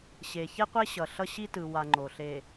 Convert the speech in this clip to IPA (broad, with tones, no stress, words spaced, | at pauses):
ɕe˨ çe˦qʷe˦ɕʌ˨ɬʌ˦ ɕi˦tɯ˨wa˨ ŋ͡ǃo˨ɬe˨